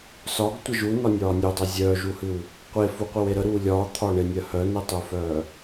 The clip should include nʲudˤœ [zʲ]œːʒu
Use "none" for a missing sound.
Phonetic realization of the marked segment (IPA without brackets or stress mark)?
zʲ